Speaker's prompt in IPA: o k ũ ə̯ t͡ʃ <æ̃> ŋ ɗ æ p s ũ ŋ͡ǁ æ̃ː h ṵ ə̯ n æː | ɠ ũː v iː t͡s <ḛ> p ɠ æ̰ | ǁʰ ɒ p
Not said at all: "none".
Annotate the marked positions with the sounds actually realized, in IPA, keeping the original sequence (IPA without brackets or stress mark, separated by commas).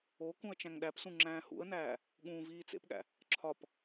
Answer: æ̃, ḛ